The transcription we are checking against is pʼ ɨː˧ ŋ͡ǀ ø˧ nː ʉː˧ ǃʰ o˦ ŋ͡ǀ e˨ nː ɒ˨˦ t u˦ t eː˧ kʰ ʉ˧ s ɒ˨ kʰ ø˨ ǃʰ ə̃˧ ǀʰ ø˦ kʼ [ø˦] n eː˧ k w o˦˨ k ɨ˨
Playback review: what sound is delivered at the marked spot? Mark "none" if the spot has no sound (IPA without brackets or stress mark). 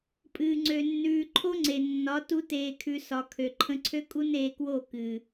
u˦